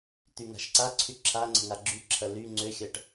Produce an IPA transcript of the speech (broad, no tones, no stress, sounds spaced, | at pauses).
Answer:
t̪ y ŋ a̤ ʃ ǀ a ǀʰ y ǁʰ a ŋ͡ǀ ə̤ ŋ a ɡ͡ǁ y ǁʰ ɐ l y ŋ͡ǀ ø xʲ ɐ ʈ